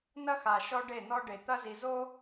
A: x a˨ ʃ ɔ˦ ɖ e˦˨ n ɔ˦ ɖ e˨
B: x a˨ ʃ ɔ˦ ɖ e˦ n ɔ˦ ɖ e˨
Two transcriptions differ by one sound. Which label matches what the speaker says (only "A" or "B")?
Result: A